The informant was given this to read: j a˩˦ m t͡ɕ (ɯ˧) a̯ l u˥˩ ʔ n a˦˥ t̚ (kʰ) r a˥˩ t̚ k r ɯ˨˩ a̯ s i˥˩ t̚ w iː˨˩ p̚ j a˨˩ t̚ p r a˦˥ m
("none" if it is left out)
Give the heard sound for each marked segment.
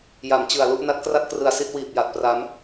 ɯ˨˩, k

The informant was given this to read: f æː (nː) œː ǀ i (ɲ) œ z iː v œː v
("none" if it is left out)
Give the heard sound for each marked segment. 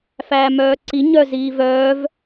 m, ɲ

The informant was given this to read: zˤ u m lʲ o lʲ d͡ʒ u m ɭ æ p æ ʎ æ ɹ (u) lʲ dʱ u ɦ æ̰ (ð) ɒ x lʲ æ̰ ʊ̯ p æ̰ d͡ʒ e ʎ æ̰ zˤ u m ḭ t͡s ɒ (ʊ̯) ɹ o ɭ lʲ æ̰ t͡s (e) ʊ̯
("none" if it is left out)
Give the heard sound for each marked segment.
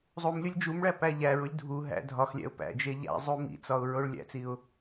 u, dʱ, ʊ̯, i

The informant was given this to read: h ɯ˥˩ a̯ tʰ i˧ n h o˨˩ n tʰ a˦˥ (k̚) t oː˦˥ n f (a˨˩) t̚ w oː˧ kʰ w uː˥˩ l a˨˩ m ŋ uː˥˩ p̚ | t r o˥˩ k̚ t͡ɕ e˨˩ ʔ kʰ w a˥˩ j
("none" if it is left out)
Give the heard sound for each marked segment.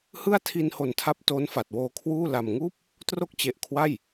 p̚, a˨˩

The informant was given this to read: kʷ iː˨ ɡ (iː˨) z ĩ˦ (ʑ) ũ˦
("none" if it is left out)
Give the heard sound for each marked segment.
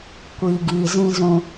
iː˨, z

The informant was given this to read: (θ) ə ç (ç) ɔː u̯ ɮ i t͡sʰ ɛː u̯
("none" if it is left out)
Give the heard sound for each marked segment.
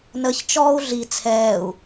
n, t͡ʃ

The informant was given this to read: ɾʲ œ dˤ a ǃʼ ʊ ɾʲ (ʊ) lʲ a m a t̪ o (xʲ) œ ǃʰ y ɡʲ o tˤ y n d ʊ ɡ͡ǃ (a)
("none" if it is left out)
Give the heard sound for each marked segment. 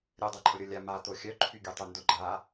ʊ, xʲ, a

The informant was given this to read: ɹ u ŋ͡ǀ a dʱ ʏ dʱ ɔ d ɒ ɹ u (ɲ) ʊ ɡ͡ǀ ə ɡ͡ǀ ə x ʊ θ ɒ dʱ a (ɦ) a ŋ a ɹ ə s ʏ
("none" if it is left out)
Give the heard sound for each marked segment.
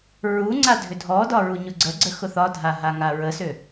ɲ, ɦ

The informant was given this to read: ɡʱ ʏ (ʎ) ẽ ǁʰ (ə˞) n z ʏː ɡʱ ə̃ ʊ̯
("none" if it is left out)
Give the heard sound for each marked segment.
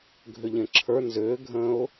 ʎ, ə˞

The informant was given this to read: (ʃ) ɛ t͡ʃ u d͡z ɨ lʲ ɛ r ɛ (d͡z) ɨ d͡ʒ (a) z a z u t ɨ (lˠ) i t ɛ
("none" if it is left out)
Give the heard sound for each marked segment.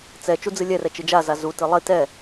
t͡s, t͡ʃ, a, lˠ

